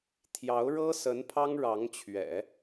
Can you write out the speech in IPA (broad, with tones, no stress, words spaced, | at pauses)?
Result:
t̪ʰjɑ˧˥ʊ̯ɻɤ˥sə˧˥n pʰɑ˥ŋɻɑ˧˥ŋt͡ɕʰɥɛ̰˨˩˦